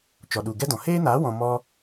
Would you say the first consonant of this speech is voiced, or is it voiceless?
voiceless